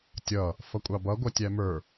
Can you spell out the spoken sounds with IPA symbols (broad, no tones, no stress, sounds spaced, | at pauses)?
tʲ ʌ | f ʌ kʷʼ ɑ b ʌ ɡʷ ʌ tʲ æ m ə˞